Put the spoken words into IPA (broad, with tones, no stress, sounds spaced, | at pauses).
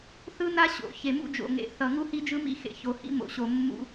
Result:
θ ɯ˦ n a˦ ɕ o̰˨ ç e˨ m ṵ˦ d͡ʒ o̰˨ ŋ ḛ˨˦ θ ʌ˨ ŋ u˦ h i˦ d͡ʒ ɯ˦ m ḭ˦ x ḛ˨ ç o˨ h ḭ˦ m o̰˨ ɕ o˨ mː ṵ˦